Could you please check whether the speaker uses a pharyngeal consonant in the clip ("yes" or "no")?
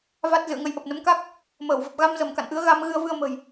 no